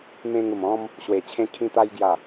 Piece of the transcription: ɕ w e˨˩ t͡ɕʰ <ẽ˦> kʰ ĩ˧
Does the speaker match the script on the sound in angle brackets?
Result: no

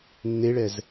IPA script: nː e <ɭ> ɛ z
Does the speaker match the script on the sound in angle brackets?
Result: yes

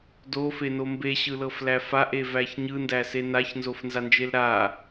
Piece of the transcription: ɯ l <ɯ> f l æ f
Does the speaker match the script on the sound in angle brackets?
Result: no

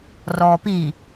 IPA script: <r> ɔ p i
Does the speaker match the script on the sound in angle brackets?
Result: yes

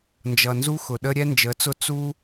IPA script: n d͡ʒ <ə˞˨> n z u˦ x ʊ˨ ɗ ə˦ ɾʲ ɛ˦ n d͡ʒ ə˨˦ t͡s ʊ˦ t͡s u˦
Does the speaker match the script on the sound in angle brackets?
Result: no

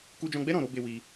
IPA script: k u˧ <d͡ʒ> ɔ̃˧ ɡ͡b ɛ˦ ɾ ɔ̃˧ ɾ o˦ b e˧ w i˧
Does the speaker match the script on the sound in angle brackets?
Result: yes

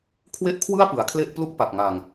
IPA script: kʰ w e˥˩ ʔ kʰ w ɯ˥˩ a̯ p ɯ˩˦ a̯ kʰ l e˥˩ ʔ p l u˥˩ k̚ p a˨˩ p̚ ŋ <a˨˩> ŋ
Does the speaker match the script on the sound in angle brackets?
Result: yes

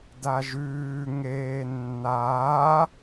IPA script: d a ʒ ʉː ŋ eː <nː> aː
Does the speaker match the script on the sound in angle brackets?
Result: yes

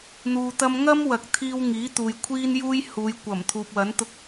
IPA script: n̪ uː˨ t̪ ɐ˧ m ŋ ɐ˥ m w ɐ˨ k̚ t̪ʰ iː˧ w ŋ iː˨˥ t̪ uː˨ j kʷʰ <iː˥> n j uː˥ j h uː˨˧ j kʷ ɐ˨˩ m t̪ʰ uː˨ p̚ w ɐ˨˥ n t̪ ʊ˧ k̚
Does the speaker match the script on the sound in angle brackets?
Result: yes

